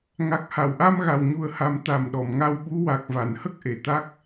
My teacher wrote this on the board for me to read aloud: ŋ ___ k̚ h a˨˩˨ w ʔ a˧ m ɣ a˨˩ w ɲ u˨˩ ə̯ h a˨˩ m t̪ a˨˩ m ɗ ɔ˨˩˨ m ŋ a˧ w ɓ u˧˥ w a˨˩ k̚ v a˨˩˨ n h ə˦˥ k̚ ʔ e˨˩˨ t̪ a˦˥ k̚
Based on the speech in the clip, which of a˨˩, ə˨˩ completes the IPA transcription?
a˨˩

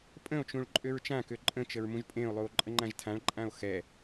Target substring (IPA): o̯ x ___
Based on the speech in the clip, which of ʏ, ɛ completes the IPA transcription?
ɛ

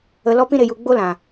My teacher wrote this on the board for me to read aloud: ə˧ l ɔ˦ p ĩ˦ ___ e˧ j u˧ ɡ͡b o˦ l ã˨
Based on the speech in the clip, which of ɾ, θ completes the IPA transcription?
ɾ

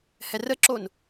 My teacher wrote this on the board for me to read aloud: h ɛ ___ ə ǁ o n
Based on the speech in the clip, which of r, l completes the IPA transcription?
r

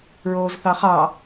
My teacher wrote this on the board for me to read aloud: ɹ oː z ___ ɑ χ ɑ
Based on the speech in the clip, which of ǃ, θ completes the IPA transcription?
θ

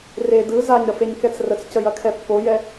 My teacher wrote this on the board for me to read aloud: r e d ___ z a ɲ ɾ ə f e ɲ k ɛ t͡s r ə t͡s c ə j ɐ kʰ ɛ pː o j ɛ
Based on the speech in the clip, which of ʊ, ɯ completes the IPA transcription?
ɯ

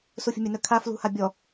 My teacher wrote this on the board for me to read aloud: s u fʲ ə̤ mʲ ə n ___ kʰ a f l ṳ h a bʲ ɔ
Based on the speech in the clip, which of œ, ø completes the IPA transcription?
œ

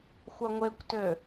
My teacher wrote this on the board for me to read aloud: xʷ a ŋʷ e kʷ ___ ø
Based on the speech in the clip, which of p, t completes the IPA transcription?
t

